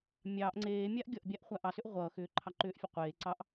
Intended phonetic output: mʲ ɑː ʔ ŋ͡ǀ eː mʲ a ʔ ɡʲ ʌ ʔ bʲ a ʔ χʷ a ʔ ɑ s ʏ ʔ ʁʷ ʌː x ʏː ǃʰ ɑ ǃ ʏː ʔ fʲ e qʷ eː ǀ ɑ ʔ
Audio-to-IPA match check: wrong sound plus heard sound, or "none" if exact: none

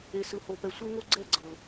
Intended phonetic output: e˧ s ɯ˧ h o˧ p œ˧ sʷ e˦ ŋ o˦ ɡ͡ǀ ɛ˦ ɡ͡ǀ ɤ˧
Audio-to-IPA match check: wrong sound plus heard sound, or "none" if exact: œ˧ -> ɛ˧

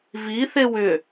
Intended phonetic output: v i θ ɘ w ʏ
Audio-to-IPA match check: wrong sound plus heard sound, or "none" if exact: ɘ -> e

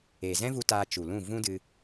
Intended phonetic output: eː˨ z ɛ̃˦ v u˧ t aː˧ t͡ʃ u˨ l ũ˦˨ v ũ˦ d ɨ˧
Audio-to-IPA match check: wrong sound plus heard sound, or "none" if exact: none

